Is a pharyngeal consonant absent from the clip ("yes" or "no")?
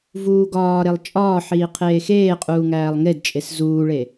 no